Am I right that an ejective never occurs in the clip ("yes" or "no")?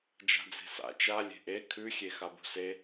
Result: yes